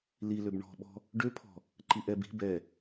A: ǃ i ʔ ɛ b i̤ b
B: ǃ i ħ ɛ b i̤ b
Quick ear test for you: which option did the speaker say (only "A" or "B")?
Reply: A